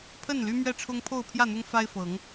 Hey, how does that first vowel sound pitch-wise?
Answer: falling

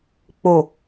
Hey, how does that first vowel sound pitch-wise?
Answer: low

